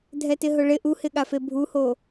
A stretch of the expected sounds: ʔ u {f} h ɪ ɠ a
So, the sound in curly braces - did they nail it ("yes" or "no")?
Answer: no